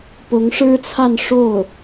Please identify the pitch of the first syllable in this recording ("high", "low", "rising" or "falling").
rising